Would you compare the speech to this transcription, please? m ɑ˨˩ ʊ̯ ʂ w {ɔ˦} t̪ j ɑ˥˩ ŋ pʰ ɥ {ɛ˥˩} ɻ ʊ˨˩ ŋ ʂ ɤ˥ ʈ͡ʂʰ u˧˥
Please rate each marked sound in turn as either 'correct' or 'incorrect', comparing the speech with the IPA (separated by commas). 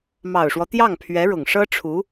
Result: correct, incorrect